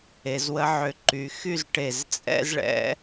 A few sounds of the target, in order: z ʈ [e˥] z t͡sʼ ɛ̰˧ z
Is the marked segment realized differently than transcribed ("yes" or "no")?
yes